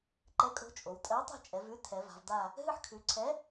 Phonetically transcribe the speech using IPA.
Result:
ǃ ɛ˨˥ kʼ o̤˨˥ t͡ʃʼ o˩˧ w tʼ ɜ˨˥ w tˤ ɛ̤˦˨ t͡ʃʼ ɛ˩˧ v ʉ˨˥ tʰ ɛ˩˧ v a̤˩˧ v d a˦˨ | ɦ ɨ˦˨ ħ kʰ ʉ˩˧ ǀʰ ɛ˨˥

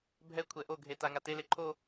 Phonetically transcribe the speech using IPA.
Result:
bʱ ɛ kʷʰ ɛ ʔ o ɡʱ e t a ŋ a t e l e ǃʰ o

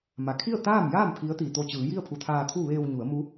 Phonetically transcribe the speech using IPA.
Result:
m a˩ kʰ i˥˨ ə̯ t̪ aː˥˨ m j aː˥˨ m pʰ i˧˥ ə̯ t̪ iː˩ t̪ o˧˩ t͡ɕ ɯː˩˧ j i˥˨ ə̯ pʰ u˧˩ t̪ʰ aː˧ t̪ʰ u˥˨ ʋ eː˧ w ɲ u˩˧ ə̯ m u˧˥

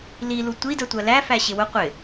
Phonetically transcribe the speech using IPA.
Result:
l i l u tʷ i d ə tʷ ɜ l æ f æ ɕ ɪ w ʊ qʷ ɪ

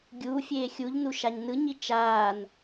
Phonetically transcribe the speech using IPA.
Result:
ɡʲ uː fʲ eː xʲ u ʎ n u ʃ a ɲ n ɯ ɲ i t͡ʃ aː n

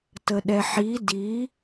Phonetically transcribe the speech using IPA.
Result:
t ə ɗ ɛ ħ i d i

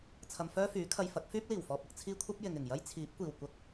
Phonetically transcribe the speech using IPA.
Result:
t͡sʰ ɐ˧ m f œː˥ f yː˨˥ kʰ ɐ˧ j f ɐ˨˥ k̚ f yː˥ p̚ l iː˨˩ w f ɔː˨ p̚ ɐ˧ k̚ t͡sʰ iː˧ kʷʰ ɐ˥ p̚ j ɪ˨ ŋ ɪ˨˩ ŋ j ɐ˥ j t͡sʰ iː˨˥ p̚ kʷ iː˨˩ w kʷ ɐ˨˥ k̚

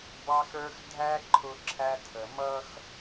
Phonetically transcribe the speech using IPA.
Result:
b ɑ˦ x ə˞˦ x dʱ æ˦ ǃʰ ʊ˦ ǁʰ æ˦ tʰ ə˨ m ʌ˦ x

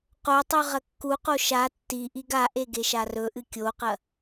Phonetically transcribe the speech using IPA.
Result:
q o tˤ ʉ ʁ ɐ kː u q o ʃ a tː i ʔ i ɡ a ʔ e ɡ e ʃ a r ɵ ʔ ɨ kʲ o q ɐ

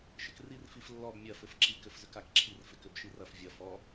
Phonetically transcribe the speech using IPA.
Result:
ʃ ɪ k r i r f i f lː ɔ b mʲ ɐ f ɘ f ǁ i k ɘ f z ʏ k a k ǁʰ i r f ɪ k ʏ b ʃ i r ɐ f vʲ ɐ f ɔ

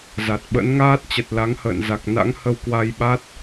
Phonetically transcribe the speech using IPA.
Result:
z a˨˩ t̚ ɓ ə̰˧˥ n ŋ aː˦˥ t̚ t͡ɕ ə˨˩ t̚ l a˨˦ ŋ h ə̰ː˧˨ n z a˨˩ k̚ n a̰˧˥ ŋ h ə˧ w k w a˧ j ɓ a˦˥ t̚

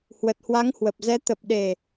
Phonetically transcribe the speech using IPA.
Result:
h w ə˨˩ t̚ h w a˨˦ ŋ h w ə˨˩ p̚ z ɛ˨˦ t̪ ə˨˩ p̚ ɗ e˨˩

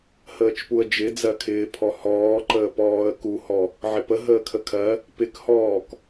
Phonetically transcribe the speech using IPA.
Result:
h əː t͡ʃ p u ə̯ d͡ʒ ɪ d͡z ɜ kʰ ɪː pʰ ɔ h ɔː ǃ əː p ɔː ə̯ k u h ɔ | ʕ ɪ p ə ɦ əː kʰ ə kʰ ɜ | p ɪ k h ɔː k

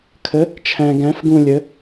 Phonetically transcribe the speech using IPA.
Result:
kʰ ə˨˥ | t͡ʃʰ æ̃˨ ɡ æ̃˨˥ f ɡ ũ˦˨ lʲ ə˨˥

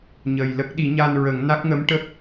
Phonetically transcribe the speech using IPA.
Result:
ɲ ə˨˩ j l ə˦˥ k̚ ɗ i˨˩˦ ɲ a˧ n ɹ ə˨˩˦ ŋ n a˦˥ k̚ ŋ ə˧˥ m ʈ ə˦˥ k̚

